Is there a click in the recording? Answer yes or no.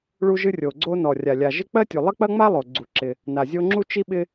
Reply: yes